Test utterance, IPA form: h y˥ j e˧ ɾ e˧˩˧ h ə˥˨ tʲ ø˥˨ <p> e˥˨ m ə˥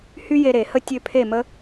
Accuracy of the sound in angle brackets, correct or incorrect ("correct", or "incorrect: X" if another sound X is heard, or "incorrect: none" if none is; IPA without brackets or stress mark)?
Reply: incorrect: pʰ